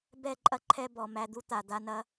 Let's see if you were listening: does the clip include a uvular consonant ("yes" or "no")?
no